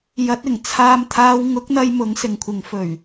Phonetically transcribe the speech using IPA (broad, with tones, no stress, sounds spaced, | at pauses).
j ɐ˨˥ t̚ ɪ˨˩ ŋ t͡sʰ aː˧ m t̪ʰ aː˧ w ŋ ʊ˨˥ k̚ n̪ ɐ˧ j m ʊ˨˥ ŋ s ɪ˨ ŋ kʷʰ ɪ˨˧ ŋ f ɵ˨˩ ɥ